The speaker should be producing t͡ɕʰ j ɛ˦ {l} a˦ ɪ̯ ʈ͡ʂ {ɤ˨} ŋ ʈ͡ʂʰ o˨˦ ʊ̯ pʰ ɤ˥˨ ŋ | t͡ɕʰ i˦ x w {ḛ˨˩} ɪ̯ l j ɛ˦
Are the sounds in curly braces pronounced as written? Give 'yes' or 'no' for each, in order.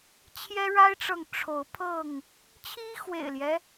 no, yes, yes

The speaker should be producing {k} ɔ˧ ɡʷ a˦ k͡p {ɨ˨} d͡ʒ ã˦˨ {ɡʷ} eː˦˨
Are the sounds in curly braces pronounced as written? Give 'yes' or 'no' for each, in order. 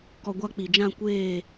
yes, no, no

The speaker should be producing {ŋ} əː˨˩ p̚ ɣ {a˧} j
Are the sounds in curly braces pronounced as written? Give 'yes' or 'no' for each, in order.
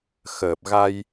no, yes

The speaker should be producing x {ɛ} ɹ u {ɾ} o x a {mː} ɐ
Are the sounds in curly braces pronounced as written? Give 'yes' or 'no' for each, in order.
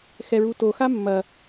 yes, no, yes

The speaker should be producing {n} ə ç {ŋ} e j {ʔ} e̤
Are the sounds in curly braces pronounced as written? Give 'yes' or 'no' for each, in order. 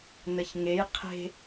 yes, yes, no

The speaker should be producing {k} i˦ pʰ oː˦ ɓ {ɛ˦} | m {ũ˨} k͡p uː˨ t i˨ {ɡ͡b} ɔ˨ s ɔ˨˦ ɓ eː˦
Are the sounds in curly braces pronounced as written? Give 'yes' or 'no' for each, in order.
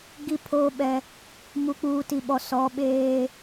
no, yes, no, no

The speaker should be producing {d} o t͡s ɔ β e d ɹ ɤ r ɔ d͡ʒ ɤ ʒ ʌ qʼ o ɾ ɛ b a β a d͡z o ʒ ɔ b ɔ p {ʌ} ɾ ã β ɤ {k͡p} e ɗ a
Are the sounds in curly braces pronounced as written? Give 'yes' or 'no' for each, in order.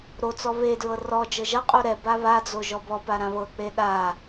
no, no, yes

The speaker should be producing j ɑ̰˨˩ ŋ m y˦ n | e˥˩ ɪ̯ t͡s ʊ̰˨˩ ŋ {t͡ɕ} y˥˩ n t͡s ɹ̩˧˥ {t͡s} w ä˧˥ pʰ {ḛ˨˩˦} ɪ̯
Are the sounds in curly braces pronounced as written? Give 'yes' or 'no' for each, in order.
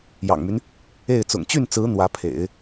yes, no, yes

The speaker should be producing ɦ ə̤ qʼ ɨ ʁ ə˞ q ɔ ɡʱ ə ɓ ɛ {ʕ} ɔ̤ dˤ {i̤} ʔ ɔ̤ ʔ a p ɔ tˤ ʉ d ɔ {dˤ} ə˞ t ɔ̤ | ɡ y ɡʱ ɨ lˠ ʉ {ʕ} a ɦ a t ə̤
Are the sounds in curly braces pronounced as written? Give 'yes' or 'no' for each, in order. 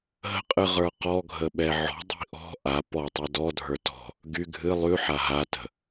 yes, yes, no, no

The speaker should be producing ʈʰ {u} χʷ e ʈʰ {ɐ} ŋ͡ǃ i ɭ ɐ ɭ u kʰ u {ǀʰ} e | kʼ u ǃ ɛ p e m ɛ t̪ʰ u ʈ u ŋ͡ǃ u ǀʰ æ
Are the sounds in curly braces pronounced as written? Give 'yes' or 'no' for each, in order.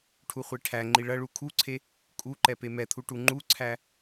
yes, no, yes

